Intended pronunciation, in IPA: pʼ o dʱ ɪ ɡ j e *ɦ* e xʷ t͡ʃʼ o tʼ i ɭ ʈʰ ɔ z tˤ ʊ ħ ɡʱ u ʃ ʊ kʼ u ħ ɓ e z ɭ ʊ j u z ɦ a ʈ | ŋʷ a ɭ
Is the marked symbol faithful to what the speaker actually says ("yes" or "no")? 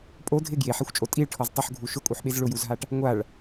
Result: no